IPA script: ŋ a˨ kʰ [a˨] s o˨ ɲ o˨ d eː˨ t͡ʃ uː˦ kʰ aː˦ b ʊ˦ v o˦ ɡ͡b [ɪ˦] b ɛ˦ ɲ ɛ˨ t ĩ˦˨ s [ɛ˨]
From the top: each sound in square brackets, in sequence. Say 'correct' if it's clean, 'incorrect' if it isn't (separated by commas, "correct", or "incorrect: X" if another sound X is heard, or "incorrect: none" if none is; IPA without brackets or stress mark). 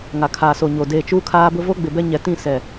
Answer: incorrect: aː˨, incorrect: ɪ˨, correct